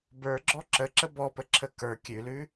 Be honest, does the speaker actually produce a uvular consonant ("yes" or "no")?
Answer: no